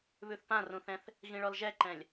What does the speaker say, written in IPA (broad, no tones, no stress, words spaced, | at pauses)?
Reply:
βʉθpãrũθɛ̃θ | ɣĩɭɔlʒɛǃɛ̃lʲ